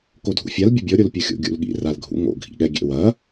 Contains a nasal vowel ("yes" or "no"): no